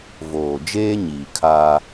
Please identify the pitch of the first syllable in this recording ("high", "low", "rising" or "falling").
low